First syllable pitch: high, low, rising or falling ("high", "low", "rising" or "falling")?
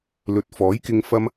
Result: rising